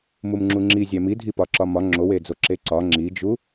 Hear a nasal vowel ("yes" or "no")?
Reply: no